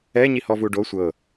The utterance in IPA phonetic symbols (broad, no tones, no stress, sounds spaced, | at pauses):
ɛ ɲ i h ɔ v u ɖ o sʷ ɤ